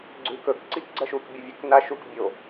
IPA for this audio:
ɡ͡ǀ ʉ k ɵ k ǀ i k ɡ͡ǀ ɐ ʃ u k bʲ ɐ vʲ ɵ k n a ʃ u k bʲ o

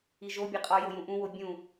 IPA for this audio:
i ʒ o bʲ e qʼ ɒ j o j ũ ʔ ũ w o bʲ ũ

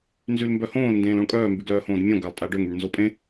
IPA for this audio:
n z y l m b œ h õː l n d ẽː l õ ɭ kʼ œː m b y ɡ l œː h õː d mʲ õ ɡ a lˠ tʼ a ɖ ø ŋ y ɳ n z o pʼ ẽ

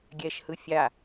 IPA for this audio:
ɡʲ ɛ ʃ h ɯ fʲ a

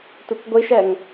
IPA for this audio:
tʷ ɨ kʷ ɡʷ i ʃ ɛ ŋ

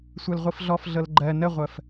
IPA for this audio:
sʷ ɜ l ʁʷ i f ɮ ɔ f ɮ ɤ l ɡ͡ǃ ɜ n ə ʁʷ ɜ f

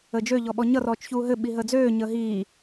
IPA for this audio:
əː d͡ʒ ø ʎ ɔ ɓ ɔ ɲ ʌ r ɔː t͡ʃ ç uː ɦ ɘ ɓ i ɦ əː d͡z øː ɲ əː ɦ iː

